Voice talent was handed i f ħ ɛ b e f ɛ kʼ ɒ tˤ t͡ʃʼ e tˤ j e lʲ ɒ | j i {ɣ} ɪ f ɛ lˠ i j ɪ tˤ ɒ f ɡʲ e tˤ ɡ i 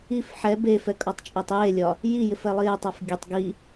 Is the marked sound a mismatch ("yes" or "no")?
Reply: yes